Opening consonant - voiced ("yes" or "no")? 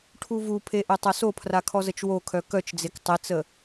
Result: no